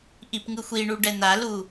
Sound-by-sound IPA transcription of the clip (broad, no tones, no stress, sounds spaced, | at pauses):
ʔ i p ŋ ɯ xʷ i ɳ u ɖ ɛ n̪ a l u